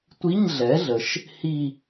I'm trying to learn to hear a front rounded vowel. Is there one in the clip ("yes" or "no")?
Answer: no